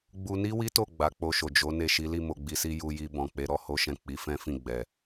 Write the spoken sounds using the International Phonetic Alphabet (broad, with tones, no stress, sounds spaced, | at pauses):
ɡ͡b u˧ n i˦ w i˦ t o˦˨ ɡ͡b a˨˦ k͡p o˧ ʃ o˨ d͡ʒ o˨˦ n e˦˨ ʃ i˨˦ l i˦˨ m o˨ ɡ͡b i˨ s i˧ j u˧ j i˧ b ɔ̃˨ k͡p e˨˦ ɾ ɔ˧ h o˦ ʃ ɛ̃˦˨ k͡p i˨˦ f ɛ̃˦ f ĩ˦˨ ɡ͡b ɛ˨